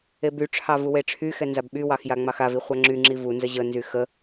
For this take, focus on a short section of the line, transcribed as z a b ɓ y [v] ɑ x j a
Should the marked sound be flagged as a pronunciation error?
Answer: yes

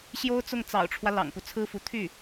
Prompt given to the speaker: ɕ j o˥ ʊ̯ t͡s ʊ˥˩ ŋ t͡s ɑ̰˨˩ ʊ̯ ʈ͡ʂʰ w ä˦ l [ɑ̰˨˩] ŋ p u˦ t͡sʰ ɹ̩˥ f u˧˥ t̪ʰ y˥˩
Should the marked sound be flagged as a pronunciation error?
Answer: no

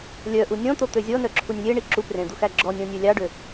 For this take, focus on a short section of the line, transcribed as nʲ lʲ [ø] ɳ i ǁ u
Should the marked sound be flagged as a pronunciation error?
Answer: yes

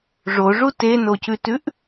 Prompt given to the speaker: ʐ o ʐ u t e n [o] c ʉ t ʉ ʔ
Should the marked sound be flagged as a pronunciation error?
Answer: no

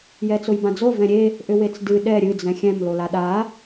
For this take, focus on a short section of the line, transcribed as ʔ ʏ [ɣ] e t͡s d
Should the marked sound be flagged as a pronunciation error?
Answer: yes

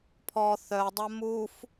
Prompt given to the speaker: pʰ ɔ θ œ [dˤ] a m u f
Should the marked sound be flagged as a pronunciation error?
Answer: no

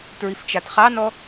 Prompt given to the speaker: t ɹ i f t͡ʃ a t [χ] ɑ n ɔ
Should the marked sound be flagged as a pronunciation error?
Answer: no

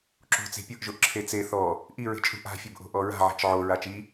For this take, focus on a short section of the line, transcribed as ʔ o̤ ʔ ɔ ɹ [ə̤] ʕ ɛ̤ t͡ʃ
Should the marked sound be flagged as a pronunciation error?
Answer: yes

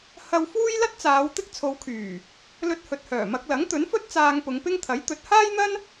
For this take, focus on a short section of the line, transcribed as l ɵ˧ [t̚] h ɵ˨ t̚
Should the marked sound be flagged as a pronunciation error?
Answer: no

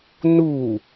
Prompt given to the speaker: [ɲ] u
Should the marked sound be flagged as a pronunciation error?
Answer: yes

